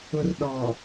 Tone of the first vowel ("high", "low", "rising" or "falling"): low